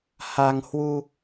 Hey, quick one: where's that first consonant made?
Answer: throat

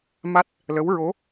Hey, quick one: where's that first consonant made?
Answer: lips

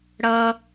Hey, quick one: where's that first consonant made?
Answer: retroflex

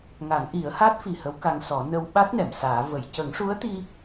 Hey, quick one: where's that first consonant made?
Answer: velum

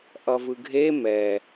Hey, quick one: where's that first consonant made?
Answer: throat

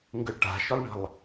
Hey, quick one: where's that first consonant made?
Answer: velum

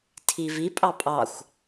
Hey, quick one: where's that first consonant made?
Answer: tongue tip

